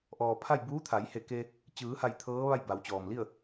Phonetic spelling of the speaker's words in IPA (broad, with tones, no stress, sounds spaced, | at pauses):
ʔ ɔː˩ pʰ a˥˨ j b uː˧˥ t̪ʰ a˩˧ j h e˧˩ k e˧ | t͡ɕ ɯː˩˧ h a˧˩ j t̪ʰ ɤː˧˥ ʋ a˥˨ j b a˩˧ w t͡ɕ ɔː˩ m l i˥˨ ə̯